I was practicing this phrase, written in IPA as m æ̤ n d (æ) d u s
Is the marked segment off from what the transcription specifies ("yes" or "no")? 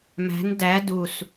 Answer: no